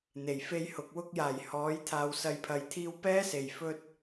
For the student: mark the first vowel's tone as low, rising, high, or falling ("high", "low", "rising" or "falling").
low